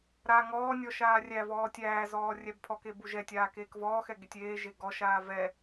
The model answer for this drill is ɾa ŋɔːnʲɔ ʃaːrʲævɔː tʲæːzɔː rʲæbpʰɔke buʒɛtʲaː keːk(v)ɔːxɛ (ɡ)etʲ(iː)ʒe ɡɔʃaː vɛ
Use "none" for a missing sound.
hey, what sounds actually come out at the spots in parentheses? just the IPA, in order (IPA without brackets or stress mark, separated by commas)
v, ɡ, eː